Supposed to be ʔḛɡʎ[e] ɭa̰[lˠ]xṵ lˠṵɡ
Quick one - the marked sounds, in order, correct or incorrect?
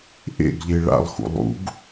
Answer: correct, correct

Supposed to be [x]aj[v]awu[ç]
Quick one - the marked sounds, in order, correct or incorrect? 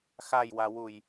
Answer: correct, incorrect, incorrect

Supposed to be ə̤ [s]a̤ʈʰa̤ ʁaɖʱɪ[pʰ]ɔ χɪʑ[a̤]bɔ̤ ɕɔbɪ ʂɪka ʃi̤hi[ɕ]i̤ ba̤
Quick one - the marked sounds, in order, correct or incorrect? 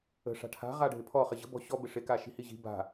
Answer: incorrect, correct, incorrect, incorrect

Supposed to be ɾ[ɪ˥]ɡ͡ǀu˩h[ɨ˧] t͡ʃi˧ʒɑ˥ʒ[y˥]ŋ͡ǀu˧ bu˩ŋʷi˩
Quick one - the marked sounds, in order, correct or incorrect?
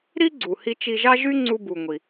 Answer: incorrect, incorrect, correct

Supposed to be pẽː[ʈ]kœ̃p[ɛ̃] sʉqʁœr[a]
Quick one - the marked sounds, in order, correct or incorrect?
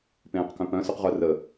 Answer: incorrect, incorrect, incorrect

